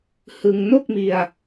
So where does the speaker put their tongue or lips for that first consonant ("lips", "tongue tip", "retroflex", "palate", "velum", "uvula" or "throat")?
throat